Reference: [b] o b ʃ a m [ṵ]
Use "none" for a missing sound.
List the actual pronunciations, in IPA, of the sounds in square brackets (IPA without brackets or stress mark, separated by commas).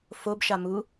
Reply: f, u